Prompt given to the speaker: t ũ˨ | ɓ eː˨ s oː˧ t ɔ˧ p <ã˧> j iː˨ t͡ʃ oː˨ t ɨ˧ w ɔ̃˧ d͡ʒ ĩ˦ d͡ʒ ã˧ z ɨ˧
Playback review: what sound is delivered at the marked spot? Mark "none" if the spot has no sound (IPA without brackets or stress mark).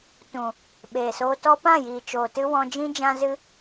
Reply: ã˦˨